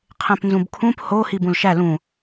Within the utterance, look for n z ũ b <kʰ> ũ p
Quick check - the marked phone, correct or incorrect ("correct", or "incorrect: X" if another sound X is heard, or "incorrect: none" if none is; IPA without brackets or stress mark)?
correct